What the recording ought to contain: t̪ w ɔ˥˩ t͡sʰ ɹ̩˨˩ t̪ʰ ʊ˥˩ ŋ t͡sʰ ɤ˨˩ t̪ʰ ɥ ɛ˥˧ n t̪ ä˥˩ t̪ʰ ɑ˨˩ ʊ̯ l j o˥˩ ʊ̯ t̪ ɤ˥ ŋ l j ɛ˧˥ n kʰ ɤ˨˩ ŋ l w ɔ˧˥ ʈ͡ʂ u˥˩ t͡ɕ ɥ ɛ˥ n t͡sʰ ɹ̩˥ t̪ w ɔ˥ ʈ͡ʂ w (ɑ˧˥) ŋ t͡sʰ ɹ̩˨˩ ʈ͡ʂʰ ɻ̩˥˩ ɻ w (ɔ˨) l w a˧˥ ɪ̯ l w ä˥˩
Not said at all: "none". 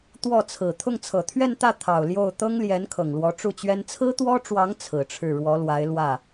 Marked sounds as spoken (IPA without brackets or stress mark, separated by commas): ɑ˧˥, ɔ˧˥